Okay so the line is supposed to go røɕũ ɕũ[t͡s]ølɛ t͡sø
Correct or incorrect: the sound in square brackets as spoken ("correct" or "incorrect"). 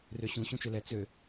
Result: incorrect